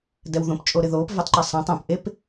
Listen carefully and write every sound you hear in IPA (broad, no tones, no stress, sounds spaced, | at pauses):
d ɛ w ð õ p t͡ʃʼ o ɾ ɪ ð oː p v ɪ tˤ ǃ ə sˤ ɛ̃ tˤ õ p ʔ e p